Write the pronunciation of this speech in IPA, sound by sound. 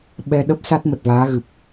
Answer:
ɓ ɛ˧ ɗ ə˦˥ p̚ s a˦˥ t̚ m ə˨˩ t̚ v aː˨˦ ɣ ɨ˨˩ p̚

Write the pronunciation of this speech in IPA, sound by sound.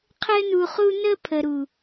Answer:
qʰ ɘ˧ n u˨ χ u˧ n ə˧ pʰ ə˨ ɾ u˨

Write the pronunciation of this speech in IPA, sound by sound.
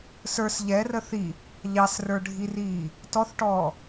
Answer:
s ə˞ s ʎ ɛ r ə θ i | ʎ ɑ s r ə˞ ɖʱ i r iː | t ɔ θ ʈ ɔː

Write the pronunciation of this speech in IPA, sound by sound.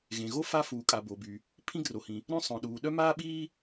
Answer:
ɣ ẽ˩ ɣ o˥ f a˥ f uː˩ kʼ a˩ b o˩ b y˩ | pʰ ĩ˥ ɡ r o˩ h ĩ˩ | ɾ œ̃˥ sˤ œ̃˩ ɗ uː˩ ɗ œ˥ m aː˥ ɓ iː˥

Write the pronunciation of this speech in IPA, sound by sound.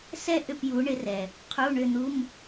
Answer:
s ɛ˥ ʔ ʏ˦˨ p j u˨˦ ɳ ɪ˨˦ r ɛ˩ | qʰ u˧˥˧ ɳ ʏ˦˨ n̪ u˧˥˧ m

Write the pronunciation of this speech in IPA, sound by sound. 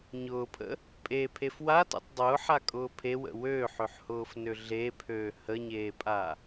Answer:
ɲ ʊː pʰ ə̰ | pʼ e pʰ e f w a t ḛ tˤ dˤ ʊː ħ a kʼ ʊː pʰ e w ə̰ w øː ħ ø ħ h ʊː f n ø ɮ e pʰ øː h ə ɲ eː pʼ a

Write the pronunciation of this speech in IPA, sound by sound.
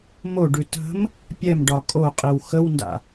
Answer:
m o ɖ ʉ t ə̤ m | pʲ ɛ m ɖ ɒ kʼ o qʼ i w x ə w n d a̰

